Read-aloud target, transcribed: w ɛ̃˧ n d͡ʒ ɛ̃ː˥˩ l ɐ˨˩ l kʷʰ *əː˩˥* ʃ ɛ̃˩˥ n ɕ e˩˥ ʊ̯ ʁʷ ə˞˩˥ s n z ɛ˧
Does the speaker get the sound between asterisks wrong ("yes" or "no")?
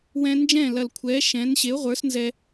yes